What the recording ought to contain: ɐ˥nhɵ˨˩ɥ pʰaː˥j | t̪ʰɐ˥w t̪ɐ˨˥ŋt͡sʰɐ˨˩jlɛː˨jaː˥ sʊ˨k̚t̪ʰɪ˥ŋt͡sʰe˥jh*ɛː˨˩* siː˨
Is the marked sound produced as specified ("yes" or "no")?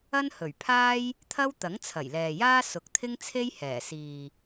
yes